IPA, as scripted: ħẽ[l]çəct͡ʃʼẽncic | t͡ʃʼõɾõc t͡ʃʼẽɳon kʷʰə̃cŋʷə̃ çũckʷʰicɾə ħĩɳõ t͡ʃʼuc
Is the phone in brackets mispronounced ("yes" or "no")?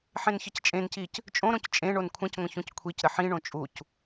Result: yes